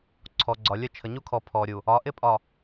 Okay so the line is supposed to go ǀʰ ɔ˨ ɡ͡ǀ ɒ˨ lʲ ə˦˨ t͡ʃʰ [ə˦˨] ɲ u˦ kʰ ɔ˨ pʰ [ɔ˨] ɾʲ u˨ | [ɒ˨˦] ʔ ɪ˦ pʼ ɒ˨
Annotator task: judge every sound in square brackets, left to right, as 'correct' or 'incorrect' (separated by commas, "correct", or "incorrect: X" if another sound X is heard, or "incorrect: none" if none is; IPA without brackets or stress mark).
incorrect: ə˨, correct, correct